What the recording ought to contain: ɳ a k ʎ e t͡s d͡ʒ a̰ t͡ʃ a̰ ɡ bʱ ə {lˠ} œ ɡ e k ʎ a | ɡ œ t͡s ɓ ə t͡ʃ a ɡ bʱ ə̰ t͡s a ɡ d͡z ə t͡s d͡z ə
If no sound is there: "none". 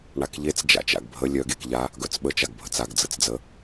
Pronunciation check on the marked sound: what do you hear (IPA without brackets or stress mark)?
lʲ